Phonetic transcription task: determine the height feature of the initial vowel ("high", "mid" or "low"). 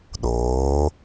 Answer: mid